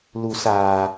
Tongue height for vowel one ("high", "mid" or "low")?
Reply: high